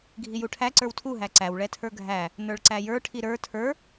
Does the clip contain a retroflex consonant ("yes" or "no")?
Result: yes